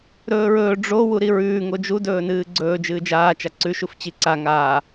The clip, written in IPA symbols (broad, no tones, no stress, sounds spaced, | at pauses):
ɾ ɵː ɹ ɵː ɖ͡ʐ o w u ɾ i ɹ ʉː ŋ o d͡ʒ u d ɵː n ɨː ɡ͡ǀ ɵː d͡ʒ ɨː d͡ʒ aː t͡ʃ a ǀ ʉ ʃ u f t͡ɕ i ǀ a ŋ aː